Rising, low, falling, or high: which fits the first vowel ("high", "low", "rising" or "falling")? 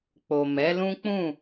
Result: low